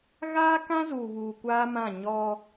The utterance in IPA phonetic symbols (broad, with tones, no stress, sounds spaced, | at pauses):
ɣ aː˦ k ã˦ z uː˨ β uː˨ kʷ aː˦ m ã˦˨ ɲ ɔ˦